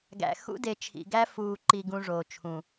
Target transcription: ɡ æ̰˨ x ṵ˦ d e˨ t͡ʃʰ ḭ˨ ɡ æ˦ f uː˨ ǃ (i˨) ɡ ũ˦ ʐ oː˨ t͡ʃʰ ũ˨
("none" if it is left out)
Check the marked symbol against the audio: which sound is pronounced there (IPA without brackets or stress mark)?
i˨